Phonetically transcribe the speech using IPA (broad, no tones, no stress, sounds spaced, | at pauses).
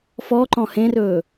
f ɔ ǃ ɔ̃ h ẽ r ɵː